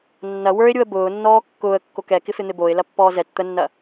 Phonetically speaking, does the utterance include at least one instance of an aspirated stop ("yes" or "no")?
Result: no